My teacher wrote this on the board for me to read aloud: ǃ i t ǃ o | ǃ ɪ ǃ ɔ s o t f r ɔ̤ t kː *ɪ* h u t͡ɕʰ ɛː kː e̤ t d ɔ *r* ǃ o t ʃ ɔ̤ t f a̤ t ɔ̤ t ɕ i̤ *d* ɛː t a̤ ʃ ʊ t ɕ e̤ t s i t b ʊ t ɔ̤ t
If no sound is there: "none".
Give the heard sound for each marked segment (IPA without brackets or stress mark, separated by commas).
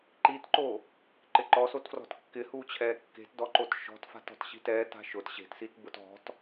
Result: ɪ, none, t